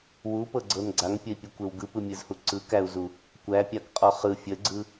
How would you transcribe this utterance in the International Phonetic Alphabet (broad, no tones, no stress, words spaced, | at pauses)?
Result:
wupɤɡ͡ǀɤn ɡ͡ǀaŋpʲəi̯pʲɯkʷew ɡɯpɯmʲɯzhu ǀɯkæu̯zu | kʷæpʲakqʼɔ χɯ fʲəɡ͡ǀɯ